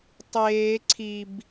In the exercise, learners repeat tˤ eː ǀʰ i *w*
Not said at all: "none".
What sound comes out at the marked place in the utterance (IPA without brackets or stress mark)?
b